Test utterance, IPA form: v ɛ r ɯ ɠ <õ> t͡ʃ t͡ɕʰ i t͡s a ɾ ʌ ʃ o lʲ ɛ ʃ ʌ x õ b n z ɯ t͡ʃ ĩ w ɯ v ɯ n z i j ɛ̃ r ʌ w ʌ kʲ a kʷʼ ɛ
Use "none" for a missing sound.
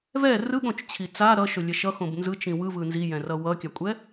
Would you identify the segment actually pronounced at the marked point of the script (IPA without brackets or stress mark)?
õ